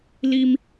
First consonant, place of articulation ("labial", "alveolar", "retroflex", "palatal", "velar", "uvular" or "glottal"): alveolar